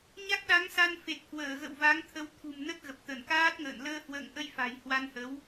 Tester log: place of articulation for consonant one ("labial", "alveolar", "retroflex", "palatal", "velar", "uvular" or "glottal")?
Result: palatal